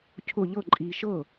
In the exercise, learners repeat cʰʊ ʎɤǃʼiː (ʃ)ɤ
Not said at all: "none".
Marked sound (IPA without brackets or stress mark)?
ʃ